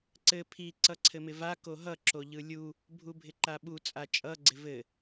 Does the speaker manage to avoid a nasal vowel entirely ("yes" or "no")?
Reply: yes